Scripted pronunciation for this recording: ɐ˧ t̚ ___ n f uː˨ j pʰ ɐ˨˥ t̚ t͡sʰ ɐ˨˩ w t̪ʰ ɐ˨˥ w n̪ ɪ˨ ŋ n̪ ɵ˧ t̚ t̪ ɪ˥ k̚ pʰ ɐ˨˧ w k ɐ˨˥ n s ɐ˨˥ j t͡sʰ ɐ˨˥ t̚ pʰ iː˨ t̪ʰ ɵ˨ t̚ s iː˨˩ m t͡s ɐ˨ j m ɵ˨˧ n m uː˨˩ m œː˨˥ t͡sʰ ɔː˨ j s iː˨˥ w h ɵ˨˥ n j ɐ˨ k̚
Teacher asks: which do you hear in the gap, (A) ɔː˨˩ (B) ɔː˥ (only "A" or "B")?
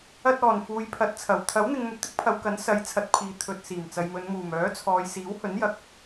A